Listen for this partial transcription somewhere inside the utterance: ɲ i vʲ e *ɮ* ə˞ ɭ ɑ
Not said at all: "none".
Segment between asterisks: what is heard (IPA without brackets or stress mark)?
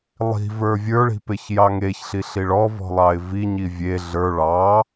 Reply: ɮ